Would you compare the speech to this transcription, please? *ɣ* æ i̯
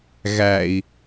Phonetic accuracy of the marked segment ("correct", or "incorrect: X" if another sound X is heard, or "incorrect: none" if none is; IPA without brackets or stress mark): correct